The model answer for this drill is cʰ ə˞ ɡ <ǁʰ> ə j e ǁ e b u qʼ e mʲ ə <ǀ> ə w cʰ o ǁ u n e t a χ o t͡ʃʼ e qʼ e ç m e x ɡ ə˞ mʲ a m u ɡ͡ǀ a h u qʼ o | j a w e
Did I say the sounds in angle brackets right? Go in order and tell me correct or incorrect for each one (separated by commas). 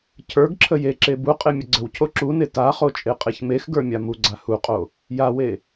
correct, incorrect